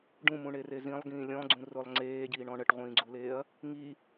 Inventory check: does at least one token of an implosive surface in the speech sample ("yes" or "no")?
no